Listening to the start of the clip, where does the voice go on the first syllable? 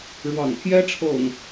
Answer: low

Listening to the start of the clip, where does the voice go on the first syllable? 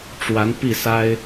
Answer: rising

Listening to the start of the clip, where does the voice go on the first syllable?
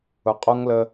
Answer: low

